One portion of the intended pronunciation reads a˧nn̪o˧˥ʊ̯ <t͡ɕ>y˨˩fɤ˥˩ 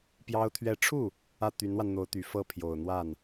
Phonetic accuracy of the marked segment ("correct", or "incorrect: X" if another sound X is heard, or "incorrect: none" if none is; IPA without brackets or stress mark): incorrect: t̪